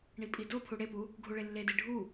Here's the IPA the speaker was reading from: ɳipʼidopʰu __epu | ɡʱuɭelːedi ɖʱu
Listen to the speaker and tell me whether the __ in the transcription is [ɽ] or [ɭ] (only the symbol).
ɽ